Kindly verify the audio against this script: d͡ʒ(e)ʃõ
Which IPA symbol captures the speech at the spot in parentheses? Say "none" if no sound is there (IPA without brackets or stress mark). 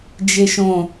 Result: e